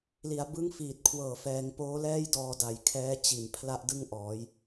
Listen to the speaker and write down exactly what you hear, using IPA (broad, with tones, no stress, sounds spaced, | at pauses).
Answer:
l i˩˦ a̯ b ɯ˦˥ ŋ f iː˨˩ t̚ kʰ w ɤː˨˩ f ɛː˩˦ ŋ p oː˦˥ l ɛː˥˩ j d ɔː˧ d a˨˩ j kʰ ɛː˦˥ t͡ɕ i˨˩ n pʰ l a˥˩ ʔ d ɯ˥˩ ŋ ʔ ɔː˩˦ j